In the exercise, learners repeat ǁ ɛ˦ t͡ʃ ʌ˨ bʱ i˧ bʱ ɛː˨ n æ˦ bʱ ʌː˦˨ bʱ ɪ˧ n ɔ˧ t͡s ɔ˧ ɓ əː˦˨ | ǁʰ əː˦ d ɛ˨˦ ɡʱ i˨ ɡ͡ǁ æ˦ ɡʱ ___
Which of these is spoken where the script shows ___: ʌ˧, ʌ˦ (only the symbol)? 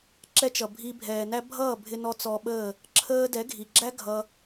ʌ˧